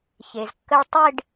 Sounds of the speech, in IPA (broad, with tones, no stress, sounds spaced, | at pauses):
ç e˩ z kː ə˧ ɭ tˤ ɪ˥˧ ɖ